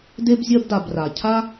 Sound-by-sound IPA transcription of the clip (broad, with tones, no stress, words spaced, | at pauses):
de˦bzʲɜ˦bda˨b ra˩cʰa˦